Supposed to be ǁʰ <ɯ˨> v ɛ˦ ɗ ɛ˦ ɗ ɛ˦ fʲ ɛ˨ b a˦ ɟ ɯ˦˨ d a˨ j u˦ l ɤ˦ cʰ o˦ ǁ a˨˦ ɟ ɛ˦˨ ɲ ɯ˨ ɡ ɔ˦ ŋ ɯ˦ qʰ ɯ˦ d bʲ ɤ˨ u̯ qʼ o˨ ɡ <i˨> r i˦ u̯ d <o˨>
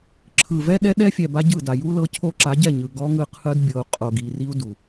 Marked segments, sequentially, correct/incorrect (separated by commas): correct, correct, incorrect